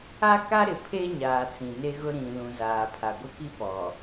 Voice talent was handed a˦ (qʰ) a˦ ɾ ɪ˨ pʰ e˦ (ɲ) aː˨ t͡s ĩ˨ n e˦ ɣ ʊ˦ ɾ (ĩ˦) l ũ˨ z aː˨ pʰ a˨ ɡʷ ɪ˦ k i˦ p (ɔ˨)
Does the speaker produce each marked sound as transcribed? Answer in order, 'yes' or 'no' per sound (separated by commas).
no, yes, no, yes